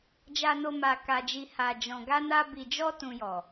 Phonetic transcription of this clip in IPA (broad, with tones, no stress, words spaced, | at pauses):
d͡ʒa˧no˧ ma˧ka˧d͡ʒi˧ ha˧ d͡ʒɔ̃˧ɡa˦na˦ bi˧d͡ʒɔ˦ tũ˧jɔ˨